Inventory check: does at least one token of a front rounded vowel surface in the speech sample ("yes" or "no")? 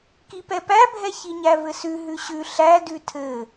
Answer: no